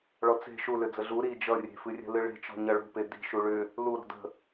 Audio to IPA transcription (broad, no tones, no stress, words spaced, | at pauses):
ɭɔt͡se̤ ʃulʏ d͡zəɮu ɾi d͡ʒʌ rʲe̤fɨrʲə̤lɨ ɭe̤t͡ʃɔ̤ ɲʌɭṳpe di̤ʃu ɭʏ | luɾɔ̤ də̤